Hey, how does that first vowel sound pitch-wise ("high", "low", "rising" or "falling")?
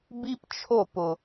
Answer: high